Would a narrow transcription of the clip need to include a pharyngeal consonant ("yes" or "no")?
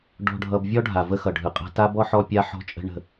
yes